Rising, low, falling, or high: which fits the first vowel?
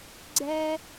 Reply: high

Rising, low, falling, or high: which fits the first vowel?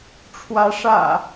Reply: rising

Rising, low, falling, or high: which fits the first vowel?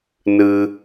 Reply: high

